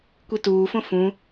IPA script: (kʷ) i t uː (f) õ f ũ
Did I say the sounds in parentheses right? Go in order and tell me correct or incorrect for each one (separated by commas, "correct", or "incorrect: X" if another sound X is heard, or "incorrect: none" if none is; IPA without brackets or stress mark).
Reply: correct, correct